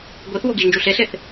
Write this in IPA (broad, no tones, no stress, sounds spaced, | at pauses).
ɡʷ i θ w o ɡ i ʒ n d͡ʒ u ɬ e ɬ e θ